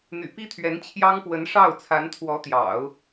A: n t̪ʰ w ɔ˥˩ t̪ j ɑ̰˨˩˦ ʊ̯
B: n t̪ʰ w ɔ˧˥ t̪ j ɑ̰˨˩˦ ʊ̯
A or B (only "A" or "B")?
B